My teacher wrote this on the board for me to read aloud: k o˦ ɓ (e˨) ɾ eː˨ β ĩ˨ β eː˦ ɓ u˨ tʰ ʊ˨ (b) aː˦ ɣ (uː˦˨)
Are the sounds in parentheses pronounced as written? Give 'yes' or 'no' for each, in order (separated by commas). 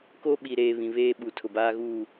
no, yes, yes